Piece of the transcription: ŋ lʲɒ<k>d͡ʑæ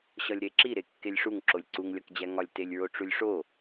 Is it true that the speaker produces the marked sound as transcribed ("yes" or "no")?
yes